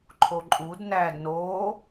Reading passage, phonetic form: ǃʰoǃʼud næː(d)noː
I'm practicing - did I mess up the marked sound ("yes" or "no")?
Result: no